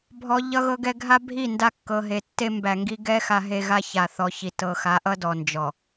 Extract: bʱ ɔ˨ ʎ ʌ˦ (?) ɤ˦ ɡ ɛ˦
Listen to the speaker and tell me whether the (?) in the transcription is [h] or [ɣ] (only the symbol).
ɣ